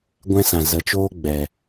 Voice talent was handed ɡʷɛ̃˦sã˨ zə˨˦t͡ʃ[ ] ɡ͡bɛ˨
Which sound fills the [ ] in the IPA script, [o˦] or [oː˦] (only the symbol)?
oː˦